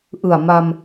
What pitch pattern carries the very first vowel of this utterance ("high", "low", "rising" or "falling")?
low